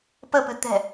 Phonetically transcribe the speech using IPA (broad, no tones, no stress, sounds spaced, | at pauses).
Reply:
p ə p ɨ t̪ ɛ̤